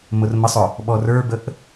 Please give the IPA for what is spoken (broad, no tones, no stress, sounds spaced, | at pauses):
m ʊ r m ə sˤ ʊ | ɓ ɔ r ə˞ b ə ʔ